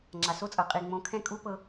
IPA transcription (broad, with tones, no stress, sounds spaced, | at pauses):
ŋ͡ǁ a˩ s o˥ t͡sʼ ɤ˩ qʼ i˩ ŋ͡m õ˩˥ kʰ ɛ̃˥ kʼ u˥ p ɤ˧